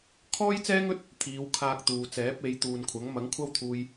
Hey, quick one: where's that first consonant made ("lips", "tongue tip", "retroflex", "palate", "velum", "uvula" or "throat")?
velum